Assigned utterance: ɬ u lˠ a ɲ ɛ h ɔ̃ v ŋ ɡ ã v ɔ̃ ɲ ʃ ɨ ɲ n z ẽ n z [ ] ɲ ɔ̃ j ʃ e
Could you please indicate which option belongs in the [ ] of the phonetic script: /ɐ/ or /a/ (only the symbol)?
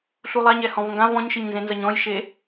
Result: ɐ